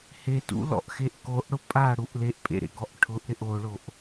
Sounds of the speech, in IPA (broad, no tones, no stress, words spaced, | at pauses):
hetṵlɔ̰ʔxeʔ koʔɽʊ pʼaɽuʔ leʔpʼḛɾḛɡɔʔ ʈʰʊʔɾɪʔ oɭoʔ